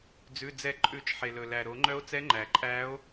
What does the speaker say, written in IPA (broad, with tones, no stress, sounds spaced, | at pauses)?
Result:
d͡z ʉ˩˧˩ d͡z ɛ˨˩˦ ǃʼ ʉ˨˩˦ t͡ʃ ħ e˩ l ɵ˩ l æ˩ ɾ o˨˩˦ ŋ͡ǃ œ˧˥ o̯ t͡s ɛ˧˥ ŋ͡ǃ æ˩ ǃʼ æ˧˥ o̯